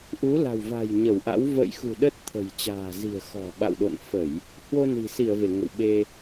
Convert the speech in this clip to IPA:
ʔ u˨˦ l a̤˨˩ w v a̤˨˩ j ɲ ə˧˩ w ʔ a̰˧˥ w v ə̰ː˧˨ j x ṳ˨˩ ɗ ə˦˥ t̚ t̪ʰ ə̤˨˩ j t͡ɕ a̤ː˨˩ z i̤˨˩ ə̯ x ɔ̤˨˩ ɓ a̰˧˨ w ɗ o̰˧˨ n f ə˧˩˨ j | h w o˧ n i̤˨˩ s i˧˩ ə̯ v e˧˩ ŋ ə̰˧˨ w ɓ e˧

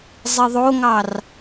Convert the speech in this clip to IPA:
zˤ i ðˤ o ŋ ɑ r

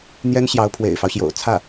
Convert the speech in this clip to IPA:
n̪ j ɛ˥ n ɕ j ɑ˧˥ ʊ̯ pʰ w ḛ˨˩ ɪ̯ f ɑ˦ ʊ̯ ɕ j o̰˨˩ ʊ̯ t͡sʰ ä˥˩

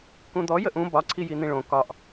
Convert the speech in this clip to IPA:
k ũ d̪ ɔ j ə ʔ ũ b ɒ ǀʰ i j i n̪ ĩ ɭ õ k ɒ ʔ

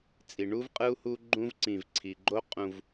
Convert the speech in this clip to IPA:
t͡sʼ i˨ ɳ u˦ v qʼ ɯ˦ u̯ h u˦ ɡ͡ǃ ũ˦ v ǀ ĩ˨ v ǀʰ i˨ ɡ͡ǃ o˦ qʼ ũ˦ v

